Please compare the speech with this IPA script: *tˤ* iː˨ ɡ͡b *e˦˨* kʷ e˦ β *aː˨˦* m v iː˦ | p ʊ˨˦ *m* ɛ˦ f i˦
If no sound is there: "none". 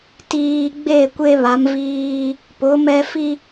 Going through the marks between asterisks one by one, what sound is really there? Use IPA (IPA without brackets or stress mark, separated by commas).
t, e˦˨, a˨˦, m